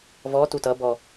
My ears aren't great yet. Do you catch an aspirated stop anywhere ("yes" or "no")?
no